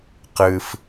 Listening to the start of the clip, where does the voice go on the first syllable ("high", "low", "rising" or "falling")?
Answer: high